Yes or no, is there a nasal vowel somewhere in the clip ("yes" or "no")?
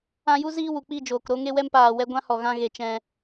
yes